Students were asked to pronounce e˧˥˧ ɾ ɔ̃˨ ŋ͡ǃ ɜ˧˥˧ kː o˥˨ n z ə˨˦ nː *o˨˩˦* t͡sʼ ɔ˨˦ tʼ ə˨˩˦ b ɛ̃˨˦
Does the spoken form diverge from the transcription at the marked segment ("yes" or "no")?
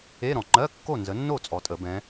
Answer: yes